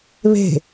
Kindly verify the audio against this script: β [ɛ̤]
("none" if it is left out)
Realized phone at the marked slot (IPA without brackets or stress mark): e̤